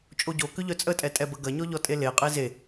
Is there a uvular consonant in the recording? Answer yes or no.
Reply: yes